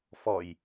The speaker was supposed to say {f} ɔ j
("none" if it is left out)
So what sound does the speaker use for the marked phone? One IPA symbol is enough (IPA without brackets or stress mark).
f